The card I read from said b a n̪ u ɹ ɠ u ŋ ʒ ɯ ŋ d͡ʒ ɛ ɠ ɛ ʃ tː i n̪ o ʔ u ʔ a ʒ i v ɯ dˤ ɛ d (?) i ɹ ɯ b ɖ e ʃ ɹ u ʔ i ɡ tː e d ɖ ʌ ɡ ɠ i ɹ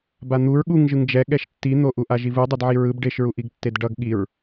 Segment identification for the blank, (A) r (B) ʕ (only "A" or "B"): B